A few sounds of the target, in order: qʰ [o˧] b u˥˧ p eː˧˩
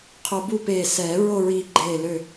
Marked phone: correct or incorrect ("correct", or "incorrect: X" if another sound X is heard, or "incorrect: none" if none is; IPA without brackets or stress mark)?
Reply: correct